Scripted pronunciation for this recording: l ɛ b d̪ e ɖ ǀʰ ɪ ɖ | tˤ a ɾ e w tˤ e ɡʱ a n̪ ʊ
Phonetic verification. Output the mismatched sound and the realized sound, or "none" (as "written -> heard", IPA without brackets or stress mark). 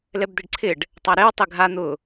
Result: none